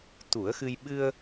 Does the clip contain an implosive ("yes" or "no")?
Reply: yes